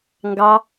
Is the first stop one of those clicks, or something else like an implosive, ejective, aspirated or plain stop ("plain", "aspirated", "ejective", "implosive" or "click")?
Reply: plain